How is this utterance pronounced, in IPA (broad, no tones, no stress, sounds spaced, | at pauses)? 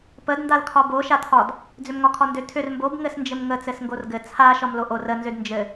p ə d n d a l kʰ ɒ b o ʃ a tʰ ɒ d | d͡z ʏ m ŋ ɒ kʰ ɒ n d ʏ tʰ ʏ r m b o b ŋ ɘ s n d͡ʒ ɘ m ŋ ə t͡s ɘ s ŋ ɡ o r ɡ ɘ t͡sʰ a ʃ ɒ m l o ʔ o r ə n z ʏ d n d͡ʒ ɘ